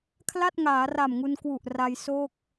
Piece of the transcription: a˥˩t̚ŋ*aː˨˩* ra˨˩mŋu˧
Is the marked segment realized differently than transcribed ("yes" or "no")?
yes